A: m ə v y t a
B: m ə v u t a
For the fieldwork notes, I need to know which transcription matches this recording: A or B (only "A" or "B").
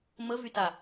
A